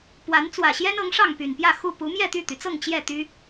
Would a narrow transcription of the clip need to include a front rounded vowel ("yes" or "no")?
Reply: yes